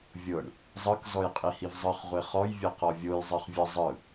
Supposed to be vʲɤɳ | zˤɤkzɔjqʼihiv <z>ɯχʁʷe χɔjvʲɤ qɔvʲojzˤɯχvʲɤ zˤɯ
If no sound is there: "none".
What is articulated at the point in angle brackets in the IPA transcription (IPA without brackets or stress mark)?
zˤ